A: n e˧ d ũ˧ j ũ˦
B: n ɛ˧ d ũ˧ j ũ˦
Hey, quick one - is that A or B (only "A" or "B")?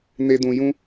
A